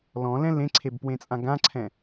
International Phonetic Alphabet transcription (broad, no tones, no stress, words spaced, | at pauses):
lɔ̃lɛ̃ lẽǀʰebpwẽt͡sʼã ɡãǀʰɛ̃